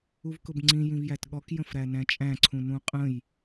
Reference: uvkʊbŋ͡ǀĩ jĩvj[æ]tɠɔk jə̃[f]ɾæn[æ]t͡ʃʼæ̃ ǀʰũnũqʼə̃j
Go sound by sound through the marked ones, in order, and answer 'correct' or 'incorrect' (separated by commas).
correct, correct, incorrect